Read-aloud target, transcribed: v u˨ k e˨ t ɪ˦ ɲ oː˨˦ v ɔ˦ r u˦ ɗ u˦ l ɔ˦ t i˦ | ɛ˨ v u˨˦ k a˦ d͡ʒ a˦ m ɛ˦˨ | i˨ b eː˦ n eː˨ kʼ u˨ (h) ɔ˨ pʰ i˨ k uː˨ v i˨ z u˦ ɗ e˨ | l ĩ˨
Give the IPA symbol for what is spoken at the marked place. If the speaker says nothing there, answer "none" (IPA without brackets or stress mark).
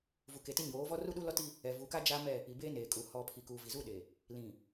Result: h